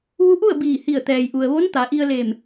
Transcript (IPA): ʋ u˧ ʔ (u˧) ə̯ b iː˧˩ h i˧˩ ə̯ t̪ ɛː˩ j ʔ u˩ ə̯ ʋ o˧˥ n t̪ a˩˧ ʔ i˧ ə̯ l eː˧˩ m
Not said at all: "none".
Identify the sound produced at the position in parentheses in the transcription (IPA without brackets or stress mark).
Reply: u˥˨